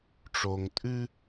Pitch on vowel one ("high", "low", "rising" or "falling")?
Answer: low